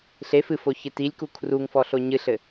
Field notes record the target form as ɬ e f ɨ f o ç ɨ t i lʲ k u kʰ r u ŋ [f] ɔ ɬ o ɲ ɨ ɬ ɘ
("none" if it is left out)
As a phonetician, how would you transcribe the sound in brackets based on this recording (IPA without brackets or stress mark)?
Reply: f